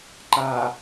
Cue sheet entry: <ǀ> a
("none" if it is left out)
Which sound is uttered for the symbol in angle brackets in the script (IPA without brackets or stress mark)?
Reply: ǃ